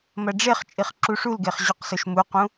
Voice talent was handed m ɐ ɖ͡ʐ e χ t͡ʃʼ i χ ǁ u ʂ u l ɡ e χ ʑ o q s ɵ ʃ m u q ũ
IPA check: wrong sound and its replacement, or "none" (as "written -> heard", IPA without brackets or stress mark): none